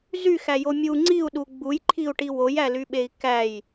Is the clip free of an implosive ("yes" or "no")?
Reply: no